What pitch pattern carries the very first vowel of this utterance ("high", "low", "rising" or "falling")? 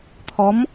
rising